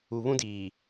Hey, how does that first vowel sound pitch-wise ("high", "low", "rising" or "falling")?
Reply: low